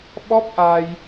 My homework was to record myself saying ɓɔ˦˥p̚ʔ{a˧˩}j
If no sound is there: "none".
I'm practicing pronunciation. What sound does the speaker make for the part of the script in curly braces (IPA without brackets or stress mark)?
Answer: a˧